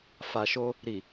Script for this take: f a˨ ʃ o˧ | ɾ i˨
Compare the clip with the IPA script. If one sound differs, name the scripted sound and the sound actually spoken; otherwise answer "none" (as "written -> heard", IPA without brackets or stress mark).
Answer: none